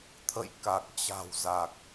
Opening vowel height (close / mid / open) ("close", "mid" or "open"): mid